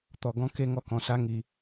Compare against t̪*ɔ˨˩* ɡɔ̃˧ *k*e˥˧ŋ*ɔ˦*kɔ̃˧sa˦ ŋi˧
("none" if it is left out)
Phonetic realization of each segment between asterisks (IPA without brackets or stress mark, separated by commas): ɔ˨˩, k, ɔ˦